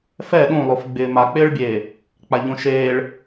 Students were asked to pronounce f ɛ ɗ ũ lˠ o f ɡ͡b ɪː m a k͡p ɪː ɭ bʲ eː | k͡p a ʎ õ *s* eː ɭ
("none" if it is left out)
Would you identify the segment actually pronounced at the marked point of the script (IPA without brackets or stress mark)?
ʃ